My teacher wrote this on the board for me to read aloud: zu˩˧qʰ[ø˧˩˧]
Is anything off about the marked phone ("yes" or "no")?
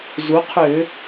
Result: no